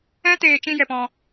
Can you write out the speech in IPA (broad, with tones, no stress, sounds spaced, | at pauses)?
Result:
ɛ̃˦ t eː˧ t͡ʃ ĩ˧ j ɛ˨ p ɔ̃˧